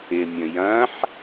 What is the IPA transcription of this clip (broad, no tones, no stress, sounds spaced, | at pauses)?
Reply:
ɪ mʲ ə̃ j ɐ̃ ħ